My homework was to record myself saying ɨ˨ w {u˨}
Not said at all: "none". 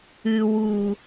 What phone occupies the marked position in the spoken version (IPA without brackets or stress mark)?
u˨